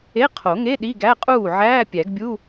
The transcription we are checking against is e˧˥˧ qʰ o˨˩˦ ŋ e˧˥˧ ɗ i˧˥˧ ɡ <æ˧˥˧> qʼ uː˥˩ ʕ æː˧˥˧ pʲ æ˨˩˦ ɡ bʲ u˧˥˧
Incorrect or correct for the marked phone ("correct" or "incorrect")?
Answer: correct